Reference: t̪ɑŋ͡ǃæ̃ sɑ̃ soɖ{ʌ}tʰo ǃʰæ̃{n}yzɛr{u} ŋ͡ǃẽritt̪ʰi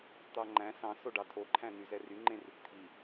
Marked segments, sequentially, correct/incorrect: incorrect: ɑ, correct, incorrect: y

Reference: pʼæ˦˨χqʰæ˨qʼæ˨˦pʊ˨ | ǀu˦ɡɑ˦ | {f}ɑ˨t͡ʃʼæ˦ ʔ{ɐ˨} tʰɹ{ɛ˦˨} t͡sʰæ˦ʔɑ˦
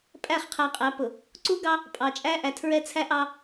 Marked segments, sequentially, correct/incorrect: incorrect: pʼ, incorrect: æ˨, incorrect: ɛ˦

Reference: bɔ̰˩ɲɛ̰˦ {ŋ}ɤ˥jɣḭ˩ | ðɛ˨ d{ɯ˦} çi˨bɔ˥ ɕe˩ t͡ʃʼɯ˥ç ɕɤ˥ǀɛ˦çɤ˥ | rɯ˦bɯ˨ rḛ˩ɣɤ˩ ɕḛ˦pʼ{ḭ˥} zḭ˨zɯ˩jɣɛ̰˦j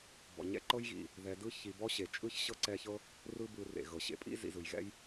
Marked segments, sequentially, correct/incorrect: incorrect: ǃ, correct, correct

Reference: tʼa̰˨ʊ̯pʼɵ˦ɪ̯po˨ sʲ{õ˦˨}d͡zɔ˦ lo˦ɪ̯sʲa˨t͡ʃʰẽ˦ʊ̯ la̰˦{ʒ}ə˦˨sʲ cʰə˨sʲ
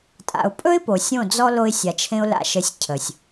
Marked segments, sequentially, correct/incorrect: correct, incorrect: ʃ

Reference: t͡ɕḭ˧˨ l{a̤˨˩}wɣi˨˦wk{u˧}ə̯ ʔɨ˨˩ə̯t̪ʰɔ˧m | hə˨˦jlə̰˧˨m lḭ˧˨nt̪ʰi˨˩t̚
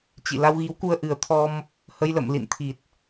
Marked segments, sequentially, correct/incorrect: incorrect: a˧, correct

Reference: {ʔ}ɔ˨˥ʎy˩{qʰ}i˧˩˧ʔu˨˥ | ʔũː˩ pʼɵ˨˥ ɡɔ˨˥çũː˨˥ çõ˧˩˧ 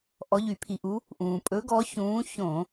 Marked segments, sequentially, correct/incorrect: correct, incorrect: pʰ

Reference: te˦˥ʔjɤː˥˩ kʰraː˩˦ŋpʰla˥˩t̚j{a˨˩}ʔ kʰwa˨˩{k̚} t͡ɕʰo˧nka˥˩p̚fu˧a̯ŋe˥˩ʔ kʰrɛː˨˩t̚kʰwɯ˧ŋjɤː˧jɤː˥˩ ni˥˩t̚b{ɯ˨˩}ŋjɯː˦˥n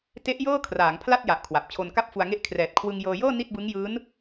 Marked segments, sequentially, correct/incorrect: correct, incorrect: p̚, incorrect: ɯ˦˥

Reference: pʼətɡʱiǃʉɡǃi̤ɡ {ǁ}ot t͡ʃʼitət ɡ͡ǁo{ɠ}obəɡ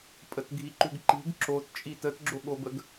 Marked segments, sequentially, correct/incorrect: correct, correct

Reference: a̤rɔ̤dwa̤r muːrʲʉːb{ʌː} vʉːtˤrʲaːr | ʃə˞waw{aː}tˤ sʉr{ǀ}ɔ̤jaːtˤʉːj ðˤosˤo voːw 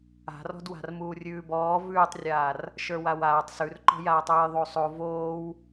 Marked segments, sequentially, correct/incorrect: incorrect: ɔː, correct, incorrect: ǃ

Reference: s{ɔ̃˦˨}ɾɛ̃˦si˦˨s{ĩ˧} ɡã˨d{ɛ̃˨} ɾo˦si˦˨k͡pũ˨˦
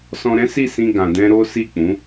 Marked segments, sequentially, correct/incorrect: incorrect: ɔ̃˧, correct, incorrect: ɛ̃˧

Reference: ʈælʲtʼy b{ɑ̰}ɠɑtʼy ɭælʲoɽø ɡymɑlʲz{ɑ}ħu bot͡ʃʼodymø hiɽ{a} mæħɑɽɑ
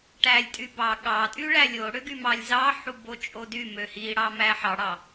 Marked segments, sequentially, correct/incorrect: incorrect: ɑ, correct, incorrect: ɑ

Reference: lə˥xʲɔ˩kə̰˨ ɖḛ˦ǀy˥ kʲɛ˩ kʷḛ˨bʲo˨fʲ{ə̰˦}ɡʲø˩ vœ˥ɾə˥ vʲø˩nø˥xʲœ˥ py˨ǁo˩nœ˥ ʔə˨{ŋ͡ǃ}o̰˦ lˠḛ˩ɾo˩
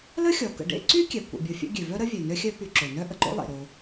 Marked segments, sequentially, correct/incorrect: incorrect: ɛ̰˦, incorrect: ǃ

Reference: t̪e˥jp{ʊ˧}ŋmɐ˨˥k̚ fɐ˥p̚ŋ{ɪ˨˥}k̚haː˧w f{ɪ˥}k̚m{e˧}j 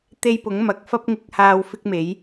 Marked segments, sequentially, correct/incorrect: incorrect: ʊ˨˥, correct, correct, incorrect: e˨˥

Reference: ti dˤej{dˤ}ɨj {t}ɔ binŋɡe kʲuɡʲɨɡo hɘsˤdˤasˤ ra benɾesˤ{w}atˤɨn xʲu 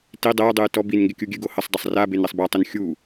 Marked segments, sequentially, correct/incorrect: correct, correct, incorrect: b

